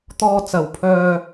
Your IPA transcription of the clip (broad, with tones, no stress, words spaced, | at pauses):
t̪ɔː˧t͡sɐ˨wpʰœː˧